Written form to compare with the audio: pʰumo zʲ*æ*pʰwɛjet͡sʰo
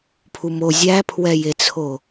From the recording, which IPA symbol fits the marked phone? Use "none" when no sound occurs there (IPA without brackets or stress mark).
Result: æ